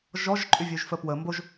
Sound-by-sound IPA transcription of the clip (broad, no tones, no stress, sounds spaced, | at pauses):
ʒ ɔ ʒ ǃʼ y vʲ ø ʒ f ə p w ə m b o ʒ